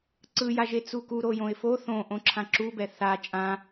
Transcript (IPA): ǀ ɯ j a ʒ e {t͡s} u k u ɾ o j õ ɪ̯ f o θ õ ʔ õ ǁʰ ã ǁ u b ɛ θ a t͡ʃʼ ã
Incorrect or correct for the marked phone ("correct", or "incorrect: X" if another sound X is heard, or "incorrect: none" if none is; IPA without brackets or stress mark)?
correct